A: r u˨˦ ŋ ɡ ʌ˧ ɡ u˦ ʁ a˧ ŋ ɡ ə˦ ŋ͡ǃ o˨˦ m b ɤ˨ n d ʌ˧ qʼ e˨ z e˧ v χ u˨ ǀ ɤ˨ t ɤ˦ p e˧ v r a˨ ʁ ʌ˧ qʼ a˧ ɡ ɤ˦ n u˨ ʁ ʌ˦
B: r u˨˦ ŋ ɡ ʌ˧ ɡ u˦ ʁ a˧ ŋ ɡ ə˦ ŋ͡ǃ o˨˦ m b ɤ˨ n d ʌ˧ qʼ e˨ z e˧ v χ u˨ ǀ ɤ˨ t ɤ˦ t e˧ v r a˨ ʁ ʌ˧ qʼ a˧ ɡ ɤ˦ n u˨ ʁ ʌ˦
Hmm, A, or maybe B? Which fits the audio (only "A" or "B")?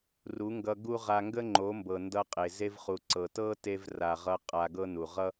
B